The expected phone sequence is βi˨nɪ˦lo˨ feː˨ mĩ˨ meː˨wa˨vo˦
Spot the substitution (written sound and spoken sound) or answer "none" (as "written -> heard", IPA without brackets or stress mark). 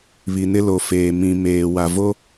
none